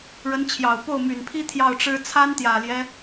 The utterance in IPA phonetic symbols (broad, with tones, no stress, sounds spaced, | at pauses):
ɻ ə˧˥ n t͡ɕʰ j ɑ˨˩ ʊ̯ p o˥˩ ʊ̯ m y˨˩ n pʰ i˥ t̪ʰ j ɑ˥˩ ʊ̯ ʈ͡ʂ ɻ̩˥ t͡sʰ a˥ n t̪ j ä˨˩ l j ɛ˦